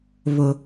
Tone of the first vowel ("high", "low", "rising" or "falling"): low